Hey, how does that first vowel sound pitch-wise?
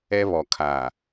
high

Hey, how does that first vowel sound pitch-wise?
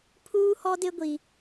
high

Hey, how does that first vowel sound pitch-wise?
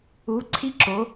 rising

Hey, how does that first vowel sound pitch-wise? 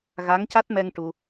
rising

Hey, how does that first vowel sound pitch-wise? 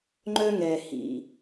high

